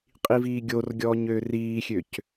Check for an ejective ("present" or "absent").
present